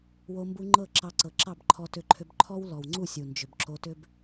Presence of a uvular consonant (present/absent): absent